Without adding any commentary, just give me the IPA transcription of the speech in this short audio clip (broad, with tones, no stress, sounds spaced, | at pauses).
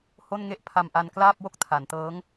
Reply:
h o˥˩ n ŋ e˥˩ ʔ pʰ a˧ m ʔ a˧ n k l aː˥˩ p̚ w o˥˩ k̚ tʰ a˩˦ n t ɤː˦˥ ŋ